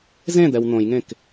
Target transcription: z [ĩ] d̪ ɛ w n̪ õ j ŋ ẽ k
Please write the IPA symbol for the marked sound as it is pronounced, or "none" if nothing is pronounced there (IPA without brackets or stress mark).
ẽ